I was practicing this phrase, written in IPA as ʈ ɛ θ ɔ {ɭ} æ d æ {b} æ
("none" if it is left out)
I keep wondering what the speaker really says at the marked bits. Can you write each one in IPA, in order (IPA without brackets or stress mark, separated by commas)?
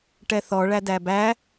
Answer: ɭ, b